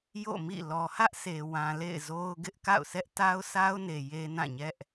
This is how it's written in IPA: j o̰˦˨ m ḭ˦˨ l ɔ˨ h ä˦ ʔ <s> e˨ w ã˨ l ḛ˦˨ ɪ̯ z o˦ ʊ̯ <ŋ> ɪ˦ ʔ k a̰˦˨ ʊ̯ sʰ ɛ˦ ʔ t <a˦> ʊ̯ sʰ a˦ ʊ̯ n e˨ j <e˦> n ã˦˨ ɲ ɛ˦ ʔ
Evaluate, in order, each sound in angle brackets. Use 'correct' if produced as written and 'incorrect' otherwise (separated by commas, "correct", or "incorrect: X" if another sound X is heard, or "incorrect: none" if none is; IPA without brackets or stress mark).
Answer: correct, incorrect: ɡ, correct, correct